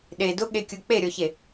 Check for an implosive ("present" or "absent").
present